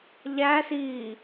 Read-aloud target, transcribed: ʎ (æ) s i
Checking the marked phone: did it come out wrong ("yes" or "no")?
no